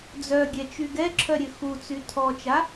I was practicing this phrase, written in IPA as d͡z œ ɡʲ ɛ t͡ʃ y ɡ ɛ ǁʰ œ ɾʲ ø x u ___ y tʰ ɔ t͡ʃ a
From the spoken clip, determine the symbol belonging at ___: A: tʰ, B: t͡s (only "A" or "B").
B